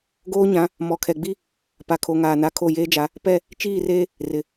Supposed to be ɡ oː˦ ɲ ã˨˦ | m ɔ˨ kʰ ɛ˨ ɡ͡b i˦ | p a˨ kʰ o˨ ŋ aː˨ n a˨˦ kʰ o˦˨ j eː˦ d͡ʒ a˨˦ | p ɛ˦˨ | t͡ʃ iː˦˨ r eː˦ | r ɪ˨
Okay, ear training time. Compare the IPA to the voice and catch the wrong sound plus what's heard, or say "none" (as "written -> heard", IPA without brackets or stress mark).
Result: none